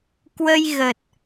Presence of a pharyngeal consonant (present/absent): absent